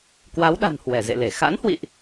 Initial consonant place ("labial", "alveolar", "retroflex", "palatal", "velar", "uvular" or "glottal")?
velar